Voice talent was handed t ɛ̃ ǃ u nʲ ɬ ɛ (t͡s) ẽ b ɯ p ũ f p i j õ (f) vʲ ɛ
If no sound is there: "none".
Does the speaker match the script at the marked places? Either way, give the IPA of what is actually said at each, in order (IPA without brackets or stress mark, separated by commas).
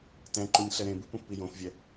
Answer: ɾ, f